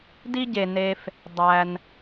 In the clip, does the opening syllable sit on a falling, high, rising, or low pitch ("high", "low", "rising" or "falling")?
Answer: high